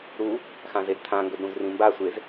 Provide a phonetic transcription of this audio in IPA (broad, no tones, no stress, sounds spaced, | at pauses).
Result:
ɾ u | x ã z e d t̪ʰ ã ŋ ɡ ɵ d ɾ ũ z r ĩ m b a sʷ e z